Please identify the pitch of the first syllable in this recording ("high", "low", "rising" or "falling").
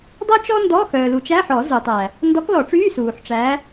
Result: high